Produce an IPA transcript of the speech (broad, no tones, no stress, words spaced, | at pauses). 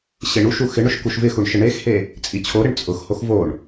ɕeɳuʃu xɪɳʊʃ kuʃvɪxuɳ ʃɪɳexhe | t͡sʼit͡ɕʰoɾɪɳ t͡sʼʊxhox voɳ